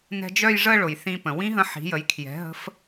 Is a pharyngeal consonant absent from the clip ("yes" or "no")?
no